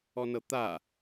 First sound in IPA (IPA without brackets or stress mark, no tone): ɔ